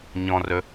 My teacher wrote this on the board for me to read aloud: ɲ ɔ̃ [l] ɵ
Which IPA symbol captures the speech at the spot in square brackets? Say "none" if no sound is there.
r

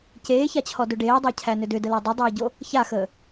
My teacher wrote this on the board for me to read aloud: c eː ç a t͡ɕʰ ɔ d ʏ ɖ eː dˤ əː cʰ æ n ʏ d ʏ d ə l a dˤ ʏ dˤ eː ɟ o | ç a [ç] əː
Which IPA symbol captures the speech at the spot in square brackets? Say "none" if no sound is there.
x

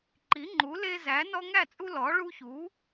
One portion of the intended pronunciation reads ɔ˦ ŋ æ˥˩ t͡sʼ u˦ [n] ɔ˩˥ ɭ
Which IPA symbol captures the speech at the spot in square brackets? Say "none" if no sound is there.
l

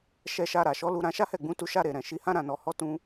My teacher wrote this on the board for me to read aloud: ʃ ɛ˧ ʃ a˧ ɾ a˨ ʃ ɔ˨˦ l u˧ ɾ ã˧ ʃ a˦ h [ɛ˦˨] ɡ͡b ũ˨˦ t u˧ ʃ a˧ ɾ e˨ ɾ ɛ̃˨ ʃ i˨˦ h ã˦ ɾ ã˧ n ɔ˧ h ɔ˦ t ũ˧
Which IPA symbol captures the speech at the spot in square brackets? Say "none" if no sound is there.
ɛ˦˨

